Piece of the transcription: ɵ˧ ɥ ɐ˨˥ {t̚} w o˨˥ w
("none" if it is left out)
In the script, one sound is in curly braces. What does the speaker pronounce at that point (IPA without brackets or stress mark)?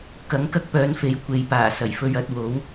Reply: t̚